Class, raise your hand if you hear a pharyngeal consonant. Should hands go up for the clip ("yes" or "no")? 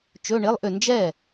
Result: no